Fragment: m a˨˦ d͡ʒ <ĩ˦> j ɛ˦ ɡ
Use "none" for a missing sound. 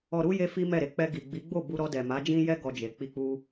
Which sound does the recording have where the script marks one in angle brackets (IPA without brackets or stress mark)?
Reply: ĩ˦